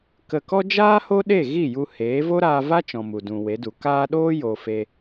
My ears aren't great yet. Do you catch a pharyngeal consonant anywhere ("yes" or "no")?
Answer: no